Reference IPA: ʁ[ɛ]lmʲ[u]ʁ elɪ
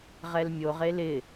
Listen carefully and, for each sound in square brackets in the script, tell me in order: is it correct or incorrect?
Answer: correct, incorrect: o

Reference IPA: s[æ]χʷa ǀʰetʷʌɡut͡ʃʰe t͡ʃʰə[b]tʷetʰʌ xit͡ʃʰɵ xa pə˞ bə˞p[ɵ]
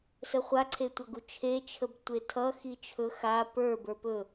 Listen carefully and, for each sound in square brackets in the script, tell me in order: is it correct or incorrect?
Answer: incorrect: ə, correct, correct

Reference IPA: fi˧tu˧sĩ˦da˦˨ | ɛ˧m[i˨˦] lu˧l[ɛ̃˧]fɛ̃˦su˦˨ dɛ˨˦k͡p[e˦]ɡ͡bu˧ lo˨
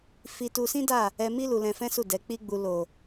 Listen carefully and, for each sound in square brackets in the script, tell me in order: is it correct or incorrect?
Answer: incorrect: i˦, correct, incorrect: i˦

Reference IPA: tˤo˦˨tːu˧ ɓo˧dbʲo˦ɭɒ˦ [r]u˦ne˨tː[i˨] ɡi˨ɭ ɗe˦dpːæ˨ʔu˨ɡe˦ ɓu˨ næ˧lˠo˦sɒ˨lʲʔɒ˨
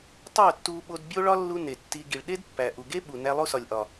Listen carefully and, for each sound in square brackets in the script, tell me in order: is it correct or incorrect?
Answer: incorrect: lː, incorrect: i˧

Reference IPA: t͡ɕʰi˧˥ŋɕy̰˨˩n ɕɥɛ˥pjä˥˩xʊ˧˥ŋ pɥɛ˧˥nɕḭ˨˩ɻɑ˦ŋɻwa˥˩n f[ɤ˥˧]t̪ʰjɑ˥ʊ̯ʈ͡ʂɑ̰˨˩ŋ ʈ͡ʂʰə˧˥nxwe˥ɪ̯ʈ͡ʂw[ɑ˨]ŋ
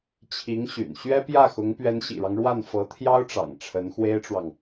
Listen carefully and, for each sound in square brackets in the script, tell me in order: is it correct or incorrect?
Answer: incorrect: ɤ˧˥, correct

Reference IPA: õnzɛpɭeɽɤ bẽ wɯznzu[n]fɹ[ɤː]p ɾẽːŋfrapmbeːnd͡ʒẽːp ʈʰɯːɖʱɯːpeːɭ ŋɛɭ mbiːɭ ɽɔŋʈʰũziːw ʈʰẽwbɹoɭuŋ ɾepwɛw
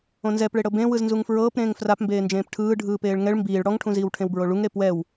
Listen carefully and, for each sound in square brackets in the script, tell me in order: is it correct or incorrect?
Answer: incorrect: ŋ, correct

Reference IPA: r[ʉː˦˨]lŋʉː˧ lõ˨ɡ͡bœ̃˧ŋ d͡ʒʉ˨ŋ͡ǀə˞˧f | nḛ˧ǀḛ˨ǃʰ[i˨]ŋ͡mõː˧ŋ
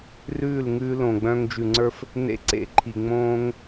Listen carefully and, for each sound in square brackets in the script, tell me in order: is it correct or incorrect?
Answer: correct, correct

